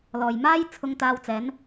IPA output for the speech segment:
lɔː˨jmaː˥j t͡sʰʊ˧ŋt̪aː˧w t͡sɛː˨˧n

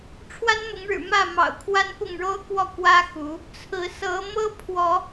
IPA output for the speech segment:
ʈ͡ʂʰwa˦nmʊ˨˦ŋɻɻ̩˨˩ mä˥˨ mɑ̰˨˩ʊ̯kʰwa˦npʊ˥˨ŋɻo˦ʊ̯ kwɔ˥˨kwä˦ xu˨˦ | t͡sʰɹ̩˨˦sɤ˨˦mɤ˦ pʰwɔ˨˦

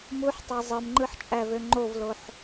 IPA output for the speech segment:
muħtˤæ zˤɯmŋ͡ǃɯħt͡ʃʼævø ŋ͡ǃovloħ

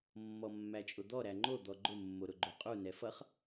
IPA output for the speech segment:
mːɔmːæt͡ʃʼʊd̪ɔ ɾæŋ͡ǃo d̪ɔɡ͡ǃʊ mːoɾʊɡ͡ǃoqʼu nɛfʌχ

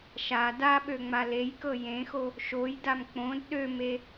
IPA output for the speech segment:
ʃa daɓø ŋ͡malejkɤ jẽxo | ʃojdam k͡põd ɗøme

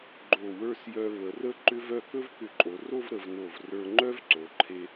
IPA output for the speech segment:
ɡ͡ǃo˧˩wə˞˥˧s jœ˧βə˩˧rə˥ ǃʏ˥vœ˥˧ kɵ˥vkʏ˧˩ǃʼo˩˧ro˥˧v ɾə˩˧vno˧˩v rə˞˧ŋ͡ǃœ˥vǀo˩˧ǃʰe˧

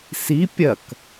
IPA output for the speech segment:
si pʲɐk

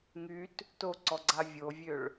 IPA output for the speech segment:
ŋyt | toǀɔɡ͡ǀa vʲovʲøɭ

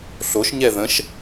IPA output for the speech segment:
ɬoʃɲɛ ðə̃ʃ

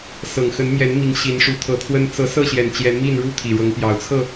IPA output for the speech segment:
sɤ˨˩ŋxə˨˦nmjɛ˨˦nmi˨˦ŋ ɕi˨˦nʂu˨˦t̪ʰɤ˨˦t̪ʰwə˦n t͡sɤ˨˦sɤ˥˨ɕjɛ˨˩n t͡ɕjɛ˨˦nmi˥˨nɻu˥˨ t̪ʰi˨˩ɻɤ˨˦ŋpjɑ˨˩ʊ̯ t͡sʰɤ˥˨

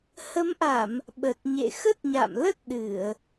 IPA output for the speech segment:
hə˨˦mʔa˧˩˨m | ɓə˨˩t̚ɲḛ˧˨ xə˦˥t̚ɲa̰˧˨mlə˦˥t̚ ɗɨ˧˩˨ə̯

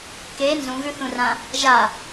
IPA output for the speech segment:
ke nzũɣʉθũrã | ʒa

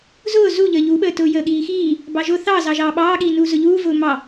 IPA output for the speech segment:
zʊː zuʎəː ʎuɓəːtʊː jəːɠiːxiː | bɑʒʊ θɑzɑ ʒɑːɓɑːɠiː nuːzʊʎuːvʊː mɑ

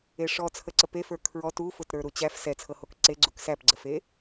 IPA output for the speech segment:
eʂɔ t͡sʰəǀəpefə˞ kʰɹɔt ufʊtɾə˞ ɾut͡ɕæf sɛt͡sʰɤhok ǀeɡ͡ǀuk sæpɡ͡ǀəfe

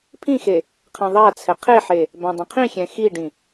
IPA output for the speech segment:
pʰĩxe | qʰãðˤat͡sʰɛ qʰeħe | bãdˤə̃qʰĩxʲɛ̃ xiɖĩ

